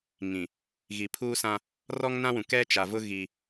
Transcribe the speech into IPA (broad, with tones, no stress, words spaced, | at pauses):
ŋĩ˨ | ɣi˨pʰuː˦sã˦ | rɔ˦ŋnã˦wũ˨ kɛ˦t͡ʃa˨vʊ˦ ɣi˦